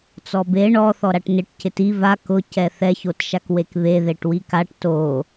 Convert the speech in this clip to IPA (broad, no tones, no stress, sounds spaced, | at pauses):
t͡s ɔ b e ɳ ɔ θ ɔ ɾ a ʈ n ɪ ʈ c ɪ t i v a k ʊ c ɛ θ ɛ ç o t ʃ a k w e k β e ð e ʈ w i k a ʈ t o